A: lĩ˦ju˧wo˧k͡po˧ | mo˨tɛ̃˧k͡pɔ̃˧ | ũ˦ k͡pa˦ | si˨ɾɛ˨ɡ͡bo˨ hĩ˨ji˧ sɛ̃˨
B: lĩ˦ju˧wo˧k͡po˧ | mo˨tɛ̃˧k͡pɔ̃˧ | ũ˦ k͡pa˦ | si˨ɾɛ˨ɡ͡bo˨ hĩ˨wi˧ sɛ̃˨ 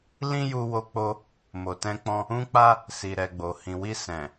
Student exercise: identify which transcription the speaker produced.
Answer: B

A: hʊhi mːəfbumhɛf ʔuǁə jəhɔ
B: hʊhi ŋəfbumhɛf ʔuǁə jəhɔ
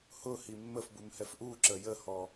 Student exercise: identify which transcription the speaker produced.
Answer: A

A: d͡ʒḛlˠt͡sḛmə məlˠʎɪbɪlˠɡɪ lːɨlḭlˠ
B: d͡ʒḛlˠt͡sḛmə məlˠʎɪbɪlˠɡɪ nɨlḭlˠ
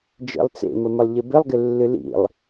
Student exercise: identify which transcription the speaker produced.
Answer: A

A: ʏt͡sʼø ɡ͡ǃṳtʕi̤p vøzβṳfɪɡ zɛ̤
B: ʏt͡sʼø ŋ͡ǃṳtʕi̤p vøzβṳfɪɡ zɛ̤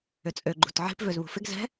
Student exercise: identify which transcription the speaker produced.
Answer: A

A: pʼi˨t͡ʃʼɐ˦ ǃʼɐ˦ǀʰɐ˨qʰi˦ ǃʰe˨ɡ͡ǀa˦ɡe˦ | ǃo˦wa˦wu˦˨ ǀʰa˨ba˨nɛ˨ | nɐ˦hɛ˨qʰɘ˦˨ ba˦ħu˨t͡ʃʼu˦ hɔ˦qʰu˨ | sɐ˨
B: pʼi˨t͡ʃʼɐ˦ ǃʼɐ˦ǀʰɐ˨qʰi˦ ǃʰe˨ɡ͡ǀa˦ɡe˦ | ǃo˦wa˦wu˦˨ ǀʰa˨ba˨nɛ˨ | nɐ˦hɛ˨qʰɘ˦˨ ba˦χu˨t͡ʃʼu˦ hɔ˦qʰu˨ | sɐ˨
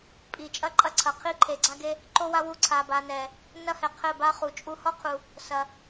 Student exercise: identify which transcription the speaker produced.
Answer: B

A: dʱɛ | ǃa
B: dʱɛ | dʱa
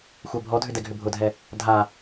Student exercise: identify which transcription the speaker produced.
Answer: B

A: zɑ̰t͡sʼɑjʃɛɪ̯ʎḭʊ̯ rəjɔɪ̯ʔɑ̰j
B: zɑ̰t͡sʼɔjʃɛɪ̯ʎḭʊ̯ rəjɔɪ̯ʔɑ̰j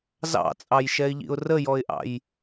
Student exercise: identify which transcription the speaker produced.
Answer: A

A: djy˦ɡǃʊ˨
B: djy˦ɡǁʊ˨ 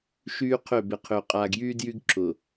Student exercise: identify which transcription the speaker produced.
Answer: B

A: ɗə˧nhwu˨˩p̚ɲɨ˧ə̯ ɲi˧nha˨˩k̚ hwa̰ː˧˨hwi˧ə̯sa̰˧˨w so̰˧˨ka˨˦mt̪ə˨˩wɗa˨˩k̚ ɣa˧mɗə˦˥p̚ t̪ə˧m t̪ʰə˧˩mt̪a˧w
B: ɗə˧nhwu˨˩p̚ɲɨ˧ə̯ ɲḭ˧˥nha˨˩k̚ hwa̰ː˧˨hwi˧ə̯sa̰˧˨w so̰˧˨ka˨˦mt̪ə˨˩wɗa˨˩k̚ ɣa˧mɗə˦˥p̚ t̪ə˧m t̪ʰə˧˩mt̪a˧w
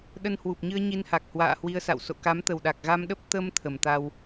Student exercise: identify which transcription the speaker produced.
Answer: A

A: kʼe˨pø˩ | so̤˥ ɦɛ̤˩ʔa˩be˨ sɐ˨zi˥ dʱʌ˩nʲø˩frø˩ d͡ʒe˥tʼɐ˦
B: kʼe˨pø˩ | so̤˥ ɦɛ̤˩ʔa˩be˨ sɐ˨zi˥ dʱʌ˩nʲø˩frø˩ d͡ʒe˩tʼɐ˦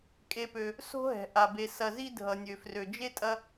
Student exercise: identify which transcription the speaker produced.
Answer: A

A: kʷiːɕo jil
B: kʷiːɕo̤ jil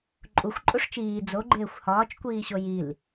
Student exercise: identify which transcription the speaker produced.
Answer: A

